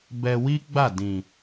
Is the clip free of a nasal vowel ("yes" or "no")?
no